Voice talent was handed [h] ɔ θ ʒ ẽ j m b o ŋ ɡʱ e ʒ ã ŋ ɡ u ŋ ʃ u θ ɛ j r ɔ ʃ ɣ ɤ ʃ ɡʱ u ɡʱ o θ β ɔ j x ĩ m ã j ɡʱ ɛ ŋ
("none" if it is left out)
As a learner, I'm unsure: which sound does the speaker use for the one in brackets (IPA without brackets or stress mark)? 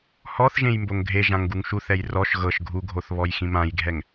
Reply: h